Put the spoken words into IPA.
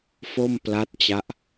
f o˥˩ m p l a˦˥ t̚ t͡ɕ a˦˥ ʔ

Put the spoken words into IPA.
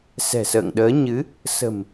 s ɛ̤˨˩ s ə̰ː˧˨ ŋ ɗ əː˨˦ ɲ ɨ˨˦ | s ə̤˨˩ m

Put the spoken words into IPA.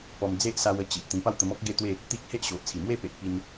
p ɔ˧ m d͡z e˦ ʔ s a˧ w ə˧ t͡ɕ i˨ ʔ t̪ ĩ˧ p a˥˧ w t̪ ə˧ m ɔ˦ k̚ ɡ e˦ t̪ w e˥˧ | t̪ i˦ k̚ h e˦ ʔ ɕ o˨ ʔ t͡sʰ i˨˩ m w e˥˧ p e˨ ʔ p i˧ n

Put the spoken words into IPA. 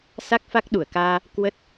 s a˦˥ k̚ f a˦˥ k̚ ɗ u˧˩ ə̯ k aː˧ | k w ə˦˥ t̚

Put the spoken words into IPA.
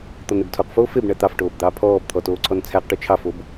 t̪ ɔ n e b tʰ o q f oː f e b ɳ æ t̪ ɑ f ʈ oː b d̪ ɑː pʰ ɔː b t̪ʰ ɔ t oː ǀʰ ɔ n t͡sʰ æ q ʈ o t͡ʃʰ ɑ f o b

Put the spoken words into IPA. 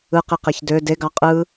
ɯ q i q e ç d ø d e ɡ ɑ qʼ ɯ

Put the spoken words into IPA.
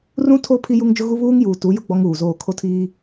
r ũ˦ tʰ o˦ pʰ i˦ j u˦ ŋ d͡ʒ ʊ˦ ɣ u˦ β uː˦ ŋ j uː˨ t u˨˦ j ʊ˦ ɡ͡b ɔ˦ ŋ uː˨ z oː˦˨ kʰ o˦ tʰ iː˦

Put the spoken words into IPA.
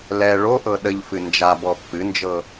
l ɛ ɭ o ʔ ɤ ɗ ə ʎ f ɨ n d͡ʒ a b ɔ pː ɨ n d͡ʒ ɤ

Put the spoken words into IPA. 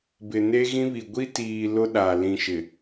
b ɪ˨ n e˦ ɣ ĩ˦ β i˨ ɡʷ i˦ t iː˨ l ʊ˦ ɗ a˨ l ĩ˨ ʃ ɪ˨

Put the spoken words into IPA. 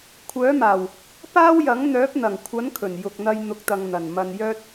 kʷʰ œː˨˥ m aː˨˩ w | p aː˥ w j ɐ˨˥ ŋ n̪ œː˨˥ p̚ n̪ ɐ˨˩ ŋ kʷʰ ɐ˨˥ n kʰ ɵ˨˩ n j ʊ˨ k̚ n̪ ɐ˧ j n̪ ʊ˨˥ k̚ t̪ ɐ˨ ŋ n̪ ɐ˨˩ n m ɐ˧ n j œː˥ t̚

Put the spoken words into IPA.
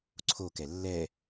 ǀʰ o k ɛ lː ɛ

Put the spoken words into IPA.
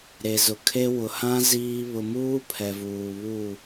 ɾ e˨ z ʊ˨ kʰ e˦ w ʊ˨ h ã˦ z iː˦ β ʊ˨ m uː˦ pʰ ɛ˨ v uː˨ β u˦˨

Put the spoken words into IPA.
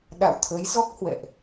ɗ a̰˧˨ w t̪ʰ ə˨˦ j z ɔ˦˥ k̚ h w ɛ̰˧˨ ʔ

